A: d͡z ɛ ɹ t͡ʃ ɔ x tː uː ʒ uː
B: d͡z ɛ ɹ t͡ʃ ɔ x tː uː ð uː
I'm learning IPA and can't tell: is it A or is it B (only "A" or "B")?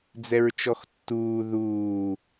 B